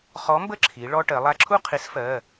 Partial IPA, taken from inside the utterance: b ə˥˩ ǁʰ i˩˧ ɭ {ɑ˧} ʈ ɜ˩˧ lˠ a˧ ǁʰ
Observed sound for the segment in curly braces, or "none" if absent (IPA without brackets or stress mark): ɔ˧